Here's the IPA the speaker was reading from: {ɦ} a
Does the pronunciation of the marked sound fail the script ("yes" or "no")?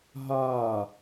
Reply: no